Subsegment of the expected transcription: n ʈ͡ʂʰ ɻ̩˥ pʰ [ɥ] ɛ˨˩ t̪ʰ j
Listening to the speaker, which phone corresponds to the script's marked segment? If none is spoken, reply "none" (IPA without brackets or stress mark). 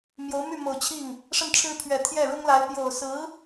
ɥ